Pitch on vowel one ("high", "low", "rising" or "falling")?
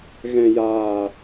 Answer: low